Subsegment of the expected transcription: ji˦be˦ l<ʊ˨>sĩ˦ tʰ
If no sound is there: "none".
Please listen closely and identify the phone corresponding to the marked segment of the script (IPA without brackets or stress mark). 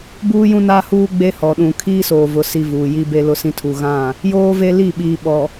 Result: ʊ˦